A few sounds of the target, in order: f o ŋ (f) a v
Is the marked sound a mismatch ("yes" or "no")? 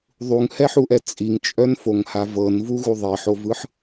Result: yes